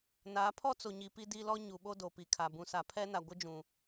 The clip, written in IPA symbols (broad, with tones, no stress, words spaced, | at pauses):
naː˨˦pʰɔ˦t͡so˨ɲi˨ pi˦di˦lɔ˦ ɲu˨ ɓo˦do˨pi˨kʰa˨ bũ˨sa˨pʰɛ˦na˨ ɡʷɪ˦d͡ʒũ˨